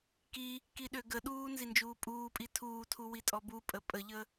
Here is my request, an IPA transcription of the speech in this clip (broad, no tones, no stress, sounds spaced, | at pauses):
k i | k i ɗ ø ɡ ə ɗ uː n z i n d͡ʒ uː pʼ uː pʼ i tʰ uː tʰ u w i tʼ ɔ b u pʼ ə pʼ ə ʎ ə